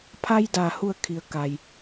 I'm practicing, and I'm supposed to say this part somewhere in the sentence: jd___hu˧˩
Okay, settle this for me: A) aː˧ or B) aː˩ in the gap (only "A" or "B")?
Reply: B